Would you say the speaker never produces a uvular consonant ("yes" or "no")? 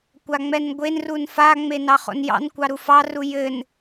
no